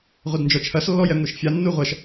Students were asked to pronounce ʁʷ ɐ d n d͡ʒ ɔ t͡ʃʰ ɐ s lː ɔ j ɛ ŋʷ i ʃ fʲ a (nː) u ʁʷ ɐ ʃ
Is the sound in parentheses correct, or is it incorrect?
correct